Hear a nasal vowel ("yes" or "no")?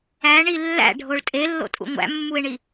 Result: no